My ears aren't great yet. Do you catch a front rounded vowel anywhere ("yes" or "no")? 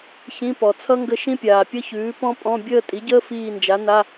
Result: no